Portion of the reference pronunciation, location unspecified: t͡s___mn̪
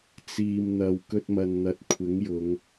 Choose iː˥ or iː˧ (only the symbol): iː˧